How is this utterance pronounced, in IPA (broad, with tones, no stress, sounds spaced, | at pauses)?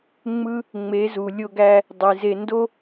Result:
ŋ͡m ɯ˦ | ŋ͡m e˨˦ z u˨ lʲ o˧ ɡ æ˧ | dˤ i˨ z e˧ n d o˦